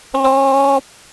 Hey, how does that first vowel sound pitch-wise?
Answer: high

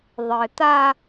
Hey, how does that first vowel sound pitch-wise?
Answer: low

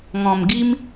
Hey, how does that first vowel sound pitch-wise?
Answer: low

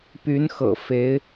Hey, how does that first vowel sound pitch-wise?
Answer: rising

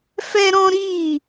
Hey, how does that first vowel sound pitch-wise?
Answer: high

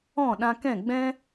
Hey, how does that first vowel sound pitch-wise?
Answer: falling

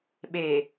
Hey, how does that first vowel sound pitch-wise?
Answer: low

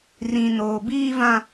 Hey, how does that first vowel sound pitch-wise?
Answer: low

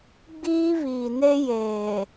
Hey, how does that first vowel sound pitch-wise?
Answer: high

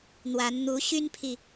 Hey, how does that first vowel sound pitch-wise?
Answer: rising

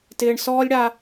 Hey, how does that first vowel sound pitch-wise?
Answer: low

